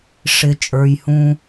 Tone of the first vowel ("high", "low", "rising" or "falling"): low